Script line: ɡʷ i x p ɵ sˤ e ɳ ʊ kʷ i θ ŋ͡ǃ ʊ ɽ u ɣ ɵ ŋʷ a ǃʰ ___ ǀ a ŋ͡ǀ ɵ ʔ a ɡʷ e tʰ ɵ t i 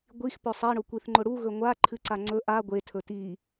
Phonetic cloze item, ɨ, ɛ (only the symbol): ɨ